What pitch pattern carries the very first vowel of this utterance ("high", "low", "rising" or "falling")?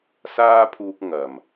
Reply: high